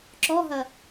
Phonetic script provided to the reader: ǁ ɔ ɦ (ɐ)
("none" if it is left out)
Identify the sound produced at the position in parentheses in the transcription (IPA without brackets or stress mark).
ɐ